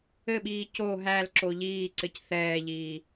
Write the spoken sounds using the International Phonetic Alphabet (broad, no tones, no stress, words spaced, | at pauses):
ɘɓiː co ɦæl ǁoʎiːǀɘc θɛːʎiː